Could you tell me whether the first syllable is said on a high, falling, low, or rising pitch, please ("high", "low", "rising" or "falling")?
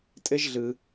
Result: high